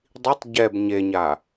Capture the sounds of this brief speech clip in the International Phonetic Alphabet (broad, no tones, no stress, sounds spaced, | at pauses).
dˤ i tˤ ɟ ɛ b ɲ e ɲ a